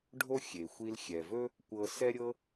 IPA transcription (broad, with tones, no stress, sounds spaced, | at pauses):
ɖʱ o˥ xʲ e˩ xʷ i˧ l xʲ ɛ˩ v ɵ˥ | kʷ ɤ˧ s ɛ˥ ɾʲ ɤ˥